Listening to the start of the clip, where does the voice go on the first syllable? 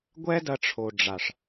high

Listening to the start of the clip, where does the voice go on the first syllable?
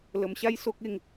low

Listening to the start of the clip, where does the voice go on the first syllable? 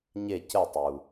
falling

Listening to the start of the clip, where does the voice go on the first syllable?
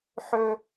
high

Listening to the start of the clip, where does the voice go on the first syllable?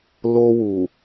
high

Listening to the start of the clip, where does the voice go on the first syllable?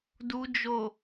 low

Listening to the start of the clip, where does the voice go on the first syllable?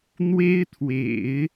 high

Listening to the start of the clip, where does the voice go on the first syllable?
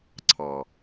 low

